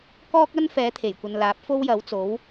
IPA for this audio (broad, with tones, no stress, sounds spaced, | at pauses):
k ɔː˥ k̚ ɐ˥ n f ɛː˨˥ t̪ʰ e˨˩ j kʷ ɐ˨ n l aː˨˥ p̚ f o˥ w j ɐ˨˥ w t͡s o˨˥ w